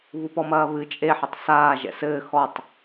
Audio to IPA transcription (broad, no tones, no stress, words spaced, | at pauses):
βupɔmɐːβɨ t͡ʃʼe ħɛtˤsaː ʒɛ̰sɘː xɔtˤ